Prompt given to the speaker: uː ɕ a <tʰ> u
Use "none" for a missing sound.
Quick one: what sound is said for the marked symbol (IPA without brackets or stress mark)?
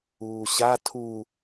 tʰ